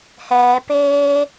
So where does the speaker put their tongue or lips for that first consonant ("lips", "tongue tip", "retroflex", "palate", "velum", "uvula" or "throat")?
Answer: throat